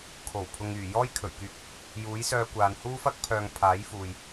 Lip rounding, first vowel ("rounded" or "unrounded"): rounded